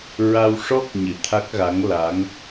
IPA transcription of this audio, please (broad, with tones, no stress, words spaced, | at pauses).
ɹa˧wʂɔ˦˥k̚ɲɨ˨˩˨ t̪ʰa˦˥k̚ɣa˧˥ŋla˧˥ŋ